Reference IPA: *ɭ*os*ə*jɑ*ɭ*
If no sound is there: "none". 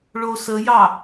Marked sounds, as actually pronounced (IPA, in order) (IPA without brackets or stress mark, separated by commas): ɭ, ə, none